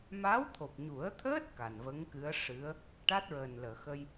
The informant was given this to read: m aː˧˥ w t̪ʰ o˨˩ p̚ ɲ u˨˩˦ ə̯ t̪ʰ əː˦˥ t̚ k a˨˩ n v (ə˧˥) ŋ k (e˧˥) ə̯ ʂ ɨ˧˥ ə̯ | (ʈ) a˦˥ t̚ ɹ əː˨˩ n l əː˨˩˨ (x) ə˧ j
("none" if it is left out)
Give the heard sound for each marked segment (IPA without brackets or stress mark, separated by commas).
ə˧˥, ɨ˧˥, ʈ, x